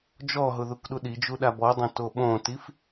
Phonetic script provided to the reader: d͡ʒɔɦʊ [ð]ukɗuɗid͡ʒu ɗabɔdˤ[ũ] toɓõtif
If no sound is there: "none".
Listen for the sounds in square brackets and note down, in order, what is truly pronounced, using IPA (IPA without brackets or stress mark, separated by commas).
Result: ð, õ